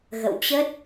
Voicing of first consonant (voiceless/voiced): voiced